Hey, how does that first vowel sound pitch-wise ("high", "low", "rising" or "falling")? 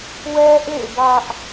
high